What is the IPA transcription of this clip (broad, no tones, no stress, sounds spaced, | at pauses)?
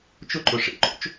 t͡ʃ ʊ ǃ ʊ ʂ ḛ ǃ o̰ t͡ʃ